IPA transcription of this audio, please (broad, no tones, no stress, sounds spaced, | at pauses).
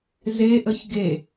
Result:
z e ʔ ə ç ɡ e